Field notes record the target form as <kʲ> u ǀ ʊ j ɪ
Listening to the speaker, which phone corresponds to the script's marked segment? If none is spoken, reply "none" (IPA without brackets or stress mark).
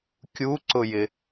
kʲ